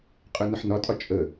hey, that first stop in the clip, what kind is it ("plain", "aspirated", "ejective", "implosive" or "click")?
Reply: ejective